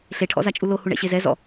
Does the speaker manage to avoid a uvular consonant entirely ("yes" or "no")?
yes